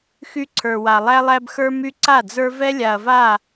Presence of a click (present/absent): present